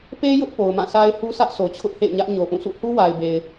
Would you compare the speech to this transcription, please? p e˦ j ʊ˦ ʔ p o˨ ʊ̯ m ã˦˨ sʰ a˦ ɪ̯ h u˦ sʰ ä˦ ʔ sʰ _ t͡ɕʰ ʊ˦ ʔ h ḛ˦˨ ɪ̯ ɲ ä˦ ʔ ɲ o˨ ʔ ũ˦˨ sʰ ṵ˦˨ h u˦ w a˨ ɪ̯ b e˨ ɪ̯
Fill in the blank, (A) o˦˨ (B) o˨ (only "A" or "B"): B